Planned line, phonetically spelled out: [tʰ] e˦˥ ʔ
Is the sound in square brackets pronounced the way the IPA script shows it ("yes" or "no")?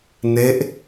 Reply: no